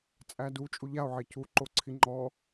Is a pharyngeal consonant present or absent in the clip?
present